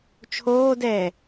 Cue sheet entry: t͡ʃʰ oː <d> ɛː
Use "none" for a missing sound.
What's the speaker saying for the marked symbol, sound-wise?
d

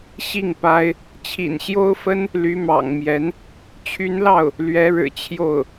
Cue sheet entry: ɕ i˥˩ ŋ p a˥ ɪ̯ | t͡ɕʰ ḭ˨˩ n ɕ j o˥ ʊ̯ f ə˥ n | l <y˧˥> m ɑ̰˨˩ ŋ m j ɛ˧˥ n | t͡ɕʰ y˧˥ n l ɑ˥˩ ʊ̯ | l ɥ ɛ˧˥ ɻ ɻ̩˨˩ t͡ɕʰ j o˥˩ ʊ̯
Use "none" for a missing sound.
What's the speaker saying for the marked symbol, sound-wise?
y˧˥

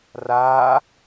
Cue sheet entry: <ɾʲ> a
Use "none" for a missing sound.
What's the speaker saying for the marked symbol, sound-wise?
r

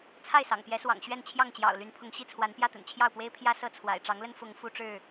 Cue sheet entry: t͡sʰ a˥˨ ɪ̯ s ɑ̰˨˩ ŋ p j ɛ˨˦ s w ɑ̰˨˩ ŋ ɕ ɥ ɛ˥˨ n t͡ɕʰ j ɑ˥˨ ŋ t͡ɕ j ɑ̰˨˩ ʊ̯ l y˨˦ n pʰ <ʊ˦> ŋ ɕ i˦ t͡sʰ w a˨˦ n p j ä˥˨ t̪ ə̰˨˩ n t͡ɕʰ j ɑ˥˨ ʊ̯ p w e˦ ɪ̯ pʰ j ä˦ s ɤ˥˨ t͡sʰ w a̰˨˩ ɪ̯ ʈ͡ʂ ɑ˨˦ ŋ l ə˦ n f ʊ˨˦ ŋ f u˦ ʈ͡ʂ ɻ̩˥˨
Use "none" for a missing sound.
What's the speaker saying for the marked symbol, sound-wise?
ʊ˨˦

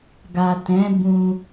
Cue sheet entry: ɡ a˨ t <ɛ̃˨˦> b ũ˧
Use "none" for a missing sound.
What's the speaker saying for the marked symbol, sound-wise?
ɛ̃˨˦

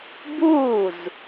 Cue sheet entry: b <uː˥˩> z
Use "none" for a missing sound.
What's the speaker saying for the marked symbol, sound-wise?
uː˥˩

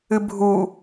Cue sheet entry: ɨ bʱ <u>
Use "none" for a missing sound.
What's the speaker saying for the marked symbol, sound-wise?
u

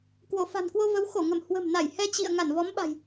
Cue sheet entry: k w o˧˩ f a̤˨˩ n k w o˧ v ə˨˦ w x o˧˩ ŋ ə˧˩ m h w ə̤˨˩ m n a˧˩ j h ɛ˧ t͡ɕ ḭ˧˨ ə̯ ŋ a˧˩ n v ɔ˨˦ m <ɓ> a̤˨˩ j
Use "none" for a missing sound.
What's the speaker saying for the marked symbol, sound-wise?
ɓ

